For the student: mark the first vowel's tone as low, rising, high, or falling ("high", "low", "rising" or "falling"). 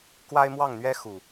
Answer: high